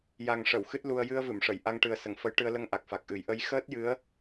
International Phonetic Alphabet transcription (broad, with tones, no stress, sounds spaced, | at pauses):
j a˨˩ ŋ ʂ ə˨˩˨ w x ɨ˦˥ t̚ l u˧ ə̯ j ɨ˧ ə̯ v ɨ˨˩˨ m ʂ ə˨˩˨ j ʔ a˧ ŋ ʈ ɨ˨˩ ə̯ s ə˨˩˨ ŋ f ə˧˥ j ʈ ɨ˧ ə̯ l ə˧ ŋ ʔ a˨˩ k̚ f a˨˩ k̚ ʔ ɨ˨˩˦ j ʔ ə˧˥ j x əː˦˥ t̚ j ɨ˧˥ ə̯